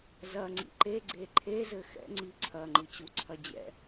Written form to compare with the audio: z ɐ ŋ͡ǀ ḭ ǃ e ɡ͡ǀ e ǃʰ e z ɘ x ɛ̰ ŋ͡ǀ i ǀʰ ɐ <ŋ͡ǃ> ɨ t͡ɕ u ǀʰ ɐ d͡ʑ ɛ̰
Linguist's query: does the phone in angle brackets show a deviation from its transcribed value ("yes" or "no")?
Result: no